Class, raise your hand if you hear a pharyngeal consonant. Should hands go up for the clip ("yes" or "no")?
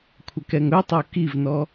no